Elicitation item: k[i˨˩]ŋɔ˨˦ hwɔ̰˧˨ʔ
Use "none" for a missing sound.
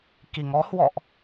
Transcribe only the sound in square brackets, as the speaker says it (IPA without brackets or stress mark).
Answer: i˨˩